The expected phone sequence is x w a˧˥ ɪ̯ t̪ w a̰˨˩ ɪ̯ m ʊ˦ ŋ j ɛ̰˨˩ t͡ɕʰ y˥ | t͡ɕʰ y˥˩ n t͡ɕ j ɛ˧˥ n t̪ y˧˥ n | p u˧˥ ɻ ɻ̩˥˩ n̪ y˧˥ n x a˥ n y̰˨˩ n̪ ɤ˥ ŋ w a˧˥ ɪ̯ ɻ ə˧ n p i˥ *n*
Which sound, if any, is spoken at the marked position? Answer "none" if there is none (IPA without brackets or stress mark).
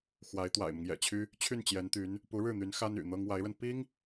ŋ